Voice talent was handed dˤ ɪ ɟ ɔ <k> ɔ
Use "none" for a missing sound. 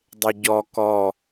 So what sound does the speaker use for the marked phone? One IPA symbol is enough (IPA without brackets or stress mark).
k